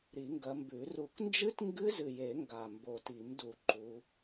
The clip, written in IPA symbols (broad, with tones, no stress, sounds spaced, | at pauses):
ɾ i˨˩˦ ŋ ɡ ɐ˨˦ m b ʉ˨˩˦ r u˨˩˦ k n d͡ʒ ɨ˦˥ t ŋ ɡ ɨ˦˥ z ɨ˨ j e˨˩˦ ŋ ɡ a˨ m b o˨ t i˨˩˦ m d u˨ ǃ u˨˦